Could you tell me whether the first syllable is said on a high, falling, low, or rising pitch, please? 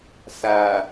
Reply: low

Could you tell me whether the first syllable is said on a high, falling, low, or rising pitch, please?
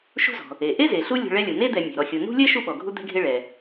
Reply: high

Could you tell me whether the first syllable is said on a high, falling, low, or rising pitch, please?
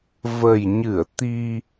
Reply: low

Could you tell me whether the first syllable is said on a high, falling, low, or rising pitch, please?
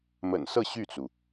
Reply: low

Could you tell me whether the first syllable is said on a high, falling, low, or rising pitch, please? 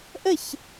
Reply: falling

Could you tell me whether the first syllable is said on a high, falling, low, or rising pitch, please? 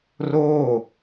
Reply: falling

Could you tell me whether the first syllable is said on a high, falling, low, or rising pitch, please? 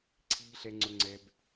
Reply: low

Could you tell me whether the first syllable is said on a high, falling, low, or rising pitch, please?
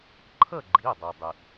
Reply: falling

